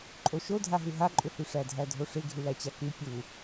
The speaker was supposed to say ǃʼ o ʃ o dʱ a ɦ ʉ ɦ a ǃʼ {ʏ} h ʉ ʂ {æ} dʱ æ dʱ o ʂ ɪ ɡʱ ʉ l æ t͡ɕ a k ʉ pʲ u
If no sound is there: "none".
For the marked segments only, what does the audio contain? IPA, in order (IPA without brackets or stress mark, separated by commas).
ʏ, æ